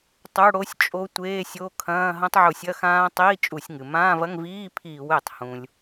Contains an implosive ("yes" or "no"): no